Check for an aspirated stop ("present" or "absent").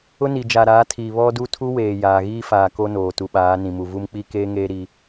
present